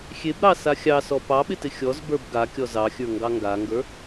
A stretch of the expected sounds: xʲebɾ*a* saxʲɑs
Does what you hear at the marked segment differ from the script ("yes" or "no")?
yes